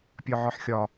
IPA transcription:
pʲ ɒ ʕ ɒ ħ xʲ ɒ

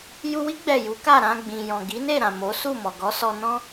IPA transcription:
j u˧ w i˦ ɡ͡b ɛ˦˨ j u˨˦ k a˦˨ ɾ ã˧ ɡ͡b ĩ˨ j ɔ̃˨ ɡ i˨˦ n e˦˨ ɾ ã˨ m o˨˦ s u˦˨ m ɔ˨ ɡ ɔ˨˦ s ɔ˧ n ɔ̃˦

